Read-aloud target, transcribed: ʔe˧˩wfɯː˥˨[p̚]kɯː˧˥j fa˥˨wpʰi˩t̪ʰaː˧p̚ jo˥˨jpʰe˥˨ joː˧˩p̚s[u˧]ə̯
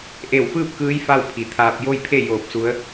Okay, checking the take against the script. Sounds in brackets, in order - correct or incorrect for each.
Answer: correct, incorrect: u˧˥

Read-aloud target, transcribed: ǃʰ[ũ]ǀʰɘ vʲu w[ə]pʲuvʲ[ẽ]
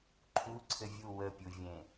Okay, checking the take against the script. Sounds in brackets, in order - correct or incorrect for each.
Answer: incorrect: u, correct, correct

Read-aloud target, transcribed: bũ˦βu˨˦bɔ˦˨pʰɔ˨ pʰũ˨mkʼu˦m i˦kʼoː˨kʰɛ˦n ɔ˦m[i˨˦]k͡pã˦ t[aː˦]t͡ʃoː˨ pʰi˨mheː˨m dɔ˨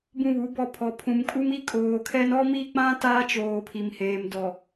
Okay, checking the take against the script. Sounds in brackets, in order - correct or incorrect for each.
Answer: incorrect: i˦, correct

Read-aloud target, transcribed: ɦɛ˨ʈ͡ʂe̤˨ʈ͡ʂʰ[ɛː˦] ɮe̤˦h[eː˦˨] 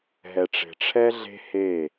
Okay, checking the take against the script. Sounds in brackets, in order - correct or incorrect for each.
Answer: incorrect: ɛ˦, correct

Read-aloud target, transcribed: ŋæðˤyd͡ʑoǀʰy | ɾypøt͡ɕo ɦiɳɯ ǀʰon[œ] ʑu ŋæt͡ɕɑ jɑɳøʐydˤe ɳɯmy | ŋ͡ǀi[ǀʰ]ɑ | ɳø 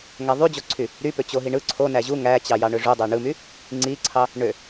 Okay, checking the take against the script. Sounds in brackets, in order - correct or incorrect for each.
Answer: incorrect: æ, correct

